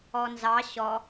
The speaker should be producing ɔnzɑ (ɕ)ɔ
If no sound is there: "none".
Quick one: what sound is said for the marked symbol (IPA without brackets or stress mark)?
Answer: ɕ